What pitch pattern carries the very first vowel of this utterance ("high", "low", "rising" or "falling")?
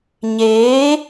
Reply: rising